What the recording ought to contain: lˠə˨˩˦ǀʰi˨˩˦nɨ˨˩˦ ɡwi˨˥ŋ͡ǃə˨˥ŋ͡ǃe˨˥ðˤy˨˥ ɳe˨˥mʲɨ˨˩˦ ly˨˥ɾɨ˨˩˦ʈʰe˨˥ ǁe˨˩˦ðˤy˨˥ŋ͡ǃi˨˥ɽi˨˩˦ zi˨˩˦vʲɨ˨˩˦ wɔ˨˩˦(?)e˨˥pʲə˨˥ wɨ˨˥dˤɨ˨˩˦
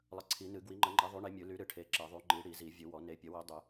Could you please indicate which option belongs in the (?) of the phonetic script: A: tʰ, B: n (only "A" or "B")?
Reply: B